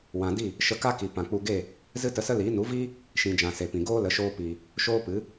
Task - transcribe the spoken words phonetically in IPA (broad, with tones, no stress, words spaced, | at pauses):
wã˨di˦˨ | ʃə˧ka˦ki˨ pã˨k͡pu˧ɡe˦˨ | zɨ˦tə˧sə˦liː˨˦ nu˨˦viː˦ | ʃĩ˨d͡ʒã˨ se˨pĩ˨ ɡoː˦lə˨˦ʃoː˧piː˨ | ʃoː˦pɨ˨˦